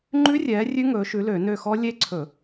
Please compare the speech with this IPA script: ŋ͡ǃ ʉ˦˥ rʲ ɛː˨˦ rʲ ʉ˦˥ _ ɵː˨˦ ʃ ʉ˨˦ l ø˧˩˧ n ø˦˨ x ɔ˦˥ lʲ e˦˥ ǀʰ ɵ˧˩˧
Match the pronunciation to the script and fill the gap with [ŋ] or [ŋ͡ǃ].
ŋ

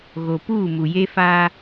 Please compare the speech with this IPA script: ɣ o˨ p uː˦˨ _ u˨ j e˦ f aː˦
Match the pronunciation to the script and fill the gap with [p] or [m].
m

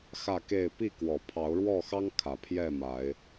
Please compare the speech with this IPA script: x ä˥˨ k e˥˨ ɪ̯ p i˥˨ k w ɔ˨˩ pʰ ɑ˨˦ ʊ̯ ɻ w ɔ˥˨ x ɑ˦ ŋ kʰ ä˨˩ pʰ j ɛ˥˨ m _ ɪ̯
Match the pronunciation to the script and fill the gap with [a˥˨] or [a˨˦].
a˨˦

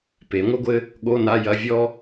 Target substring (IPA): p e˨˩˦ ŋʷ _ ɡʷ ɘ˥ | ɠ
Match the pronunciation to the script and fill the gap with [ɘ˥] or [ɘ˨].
ɘ˥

